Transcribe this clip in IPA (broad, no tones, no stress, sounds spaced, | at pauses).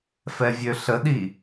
f ɛ vʲ ø ɬ ə ɗ i